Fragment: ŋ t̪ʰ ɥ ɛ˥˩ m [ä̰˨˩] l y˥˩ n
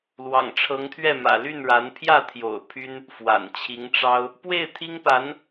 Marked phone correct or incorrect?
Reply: correct